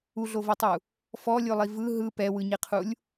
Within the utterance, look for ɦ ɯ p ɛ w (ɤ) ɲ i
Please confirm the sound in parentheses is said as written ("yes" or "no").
no